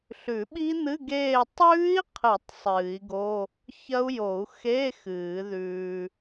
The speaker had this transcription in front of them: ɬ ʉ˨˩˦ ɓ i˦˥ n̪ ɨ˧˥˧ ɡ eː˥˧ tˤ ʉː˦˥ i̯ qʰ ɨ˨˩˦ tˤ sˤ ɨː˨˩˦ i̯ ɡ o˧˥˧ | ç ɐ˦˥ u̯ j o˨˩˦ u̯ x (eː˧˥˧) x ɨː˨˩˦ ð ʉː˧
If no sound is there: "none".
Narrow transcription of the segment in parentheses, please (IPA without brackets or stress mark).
eː˧˥˧